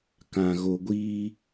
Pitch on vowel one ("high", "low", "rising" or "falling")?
low